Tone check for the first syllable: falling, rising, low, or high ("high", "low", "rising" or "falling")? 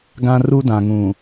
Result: high